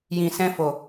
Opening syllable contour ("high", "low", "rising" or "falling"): low